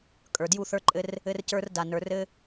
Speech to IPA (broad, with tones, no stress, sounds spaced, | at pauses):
kʼ ə˞˨ d j u˦˨ θ ə˞˦ ǃʼ ɘ˦ r | ɘ˦ r c ə˞˦ r d a˨ n ə˞˨ r ɘ˦